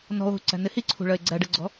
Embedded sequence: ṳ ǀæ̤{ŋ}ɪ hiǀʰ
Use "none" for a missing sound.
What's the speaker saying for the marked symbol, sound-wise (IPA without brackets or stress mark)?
n